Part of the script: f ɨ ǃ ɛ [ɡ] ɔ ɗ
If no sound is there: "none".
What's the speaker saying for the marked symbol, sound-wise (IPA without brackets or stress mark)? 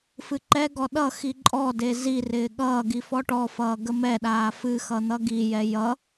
ɡ